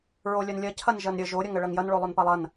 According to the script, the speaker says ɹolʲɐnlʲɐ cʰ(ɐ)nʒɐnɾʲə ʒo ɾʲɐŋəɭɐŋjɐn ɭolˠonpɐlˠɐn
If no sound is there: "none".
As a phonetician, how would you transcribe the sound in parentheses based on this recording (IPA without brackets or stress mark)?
ɐ